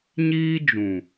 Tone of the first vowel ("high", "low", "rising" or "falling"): high